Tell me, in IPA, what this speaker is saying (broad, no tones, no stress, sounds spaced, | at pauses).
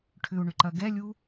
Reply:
ʈʰ ʏ u̯ ɳ ʏ ǃ ɐ ɡ ɛ lʲ u